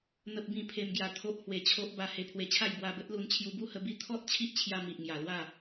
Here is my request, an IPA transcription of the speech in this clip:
n̪ ə˦ p̚ b ĩ˥˧ pʰ e˧ m ɡ j a˧ t̪ʰ o˦ ʔ h w e˧ t͡ɕʰ o˦ ʔ b a˧ h e˧ pʰ w e˧ t͡ɕʰ a˥˧ j b w a˧ b ə˦ t̚ l u˧ n t͡ɕʰ j u˧ b u˦ h ə˧ b i˦ t̪ʰ ɔ˦ t̚ t͡ɕʰ i˦ ʔ t͡ɕʰ j a˧ m i˨ ʔ ŋ j a˨˩ l w a˥˧

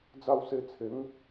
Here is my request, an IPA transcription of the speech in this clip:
d͡z a˧ w s e˧ t͡sʰ e˨˦ ŋ

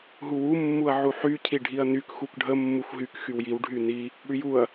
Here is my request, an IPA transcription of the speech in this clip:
ɦ u w u mː u ɐ̯ ʕ u ħ y cʰ i ɖʱ i ɐ̯ n y k x u k ɖʱ ə mː u xʷ ɦ y k x y w j i w ɖʱ y n i | ɽ y j u ɐ̯

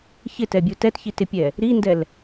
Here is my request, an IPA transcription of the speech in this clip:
ç ɪ t ɛ bʲ u t ɛ t ç i t ɪ pʲ ɛ | ɾ i n d ɛ l

